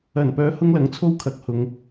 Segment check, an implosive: absent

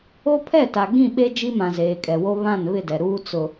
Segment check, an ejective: present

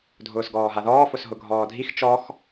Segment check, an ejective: absent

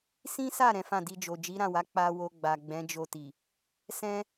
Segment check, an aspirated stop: absent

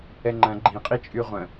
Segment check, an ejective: present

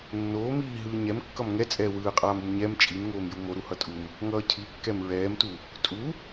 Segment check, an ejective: present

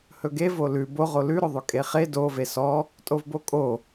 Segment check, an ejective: present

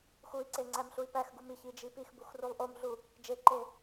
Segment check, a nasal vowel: absent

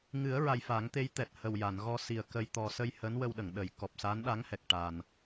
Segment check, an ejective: absent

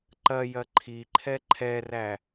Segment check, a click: present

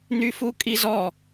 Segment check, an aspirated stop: absent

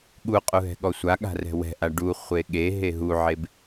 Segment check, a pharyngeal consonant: present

